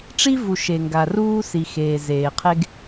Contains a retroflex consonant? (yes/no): yes